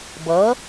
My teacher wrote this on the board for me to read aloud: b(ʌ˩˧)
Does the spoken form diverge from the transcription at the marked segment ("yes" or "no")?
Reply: no